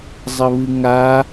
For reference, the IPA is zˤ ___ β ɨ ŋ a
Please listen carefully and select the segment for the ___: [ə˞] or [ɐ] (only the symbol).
ɐ